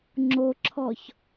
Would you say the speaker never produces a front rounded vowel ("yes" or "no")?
yes